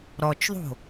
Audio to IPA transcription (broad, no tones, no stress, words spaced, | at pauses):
ɾɔt͡ʃðˤo̤